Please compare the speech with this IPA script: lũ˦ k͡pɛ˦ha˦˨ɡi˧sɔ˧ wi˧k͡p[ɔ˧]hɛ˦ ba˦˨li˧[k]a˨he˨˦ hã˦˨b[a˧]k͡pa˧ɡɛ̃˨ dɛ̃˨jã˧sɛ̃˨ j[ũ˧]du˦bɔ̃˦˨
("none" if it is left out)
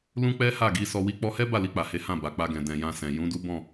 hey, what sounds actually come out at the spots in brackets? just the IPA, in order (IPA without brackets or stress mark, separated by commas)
ɔ˧, k͡p, a˨, ũ˨˦